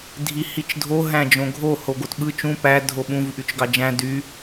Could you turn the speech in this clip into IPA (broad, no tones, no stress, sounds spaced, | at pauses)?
dʱ i h i t͡ʃ dʱ o ɦ æ̃ d͡ʒ õ ɡʱ o h o ɡ o t ɓ ɯ t͡ʃ ũ p æ dʱ o ɓ ũ v ʔ y t͡ʃ ɡ ɑ d͡ʒ æ̃ d y